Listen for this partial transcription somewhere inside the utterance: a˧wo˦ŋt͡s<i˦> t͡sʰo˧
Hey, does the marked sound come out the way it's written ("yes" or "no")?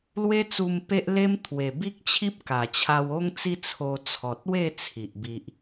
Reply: yes